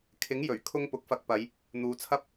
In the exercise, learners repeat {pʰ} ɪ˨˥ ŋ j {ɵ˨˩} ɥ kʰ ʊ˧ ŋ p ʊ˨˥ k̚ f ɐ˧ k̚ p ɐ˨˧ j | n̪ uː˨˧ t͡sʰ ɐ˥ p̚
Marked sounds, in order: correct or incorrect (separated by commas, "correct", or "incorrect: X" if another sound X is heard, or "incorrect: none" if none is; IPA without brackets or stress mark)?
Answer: incorrect: kʰ, correct